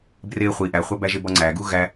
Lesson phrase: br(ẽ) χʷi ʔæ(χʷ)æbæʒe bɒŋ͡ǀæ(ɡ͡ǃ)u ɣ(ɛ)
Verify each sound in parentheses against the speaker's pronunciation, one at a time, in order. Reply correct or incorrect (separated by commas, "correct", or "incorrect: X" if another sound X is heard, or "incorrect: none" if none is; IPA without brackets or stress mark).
incorrect: e, correct, incorrect: ɡ, incorrect: æ